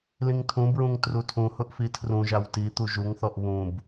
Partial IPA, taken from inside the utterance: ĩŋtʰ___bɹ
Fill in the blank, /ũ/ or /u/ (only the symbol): ũ